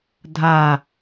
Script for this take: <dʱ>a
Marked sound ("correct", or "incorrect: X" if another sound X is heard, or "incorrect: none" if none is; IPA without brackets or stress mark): correct